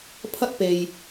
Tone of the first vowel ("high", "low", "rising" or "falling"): high